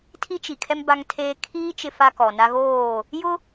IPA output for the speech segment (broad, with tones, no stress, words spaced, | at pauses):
tʰi˦t͡ʃi˨kʰɛ˦m ba˦ŋtʰeː˦ kʰiː˦ t͡ʃɪ˦fa˦kɔ˨na˦ ɣoː˦˨ | jʊ˦